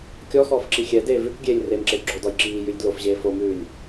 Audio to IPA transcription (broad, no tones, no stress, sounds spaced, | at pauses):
kʲ ɔ x ɔː f ǁ i xʲ ɛ d eː v ʉ k ɡʲ eː lʲ r e m ǁ e d ɡ͡ǁ o d ɔ j ǁ iː j ʉ lʲ d l o f ʑ eː f o m ʉː lʲ